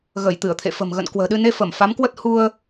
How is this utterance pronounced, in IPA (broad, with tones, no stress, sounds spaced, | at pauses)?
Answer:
ɣ ə˧˩ j t̪ ɨ˧˩ ə̯ t̪ʰ ḛ˧˨ f ə̤˨˩ m ɣ ə̰˧˨ n k w ə̤ː˨˩ ɗ ɨ˧ n e˧ f ə˧˩ m f a˨˦ m k w ə˦˥ t̚ h u˧ ə̯